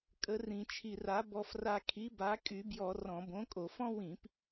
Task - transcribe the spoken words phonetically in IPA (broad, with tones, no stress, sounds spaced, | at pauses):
kʼ ə˨˥ r ĩ˧ t͡ʃʰ i˧ r a˨˥ b ɔ˧ f r a˧ kʰ i˨˥ b a˨˥ kʼ y˧˩˧ b j ɔ˧˩˧ r ɔ̃˧˩˧ b õ˨˥ kʼ o˧˩˧ f ɔ̃˥ w ĩ˧˩˧ p